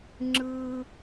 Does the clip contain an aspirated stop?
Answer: no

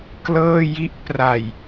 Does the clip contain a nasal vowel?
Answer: no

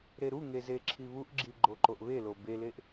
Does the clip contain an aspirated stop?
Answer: yes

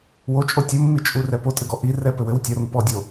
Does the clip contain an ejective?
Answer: yes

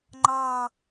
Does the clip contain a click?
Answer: yes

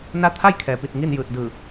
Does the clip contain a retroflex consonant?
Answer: no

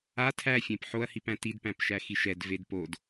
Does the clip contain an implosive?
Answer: no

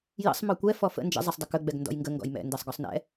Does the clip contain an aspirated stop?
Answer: no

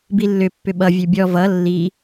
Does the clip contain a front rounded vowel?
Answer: yes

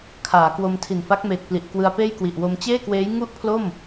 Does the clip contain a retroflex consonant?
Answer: no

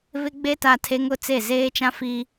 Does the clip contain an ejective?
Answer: no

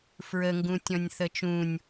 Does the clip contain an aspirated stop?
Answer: no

